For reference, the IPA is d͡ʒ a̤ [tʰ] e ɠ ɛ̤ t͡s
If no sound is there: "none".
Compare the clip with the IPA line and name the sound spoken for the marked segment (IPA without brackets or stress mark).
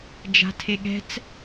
tʰ